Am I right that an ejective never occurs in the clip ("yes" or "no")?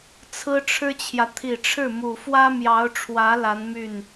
yes